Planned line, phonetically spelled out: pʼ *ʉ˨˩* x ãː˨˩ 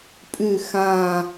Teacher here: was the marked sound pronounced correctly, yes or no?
yes